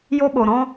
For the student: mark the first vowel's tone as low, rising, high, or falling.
high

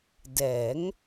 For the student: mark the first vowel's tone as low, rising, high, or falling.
rising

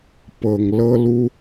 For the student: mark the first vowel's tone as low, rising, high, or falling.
low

